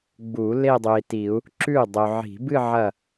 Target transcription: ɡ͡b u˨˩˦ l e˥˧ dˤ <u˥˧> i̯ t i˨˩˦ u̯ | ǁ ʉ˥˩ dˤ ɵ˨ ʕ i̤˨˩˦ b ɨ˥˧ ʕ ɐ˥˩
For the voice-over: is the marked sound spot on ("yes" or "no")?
no